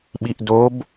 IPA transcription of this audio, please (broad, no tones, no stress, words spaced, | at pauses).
ɓiʔdob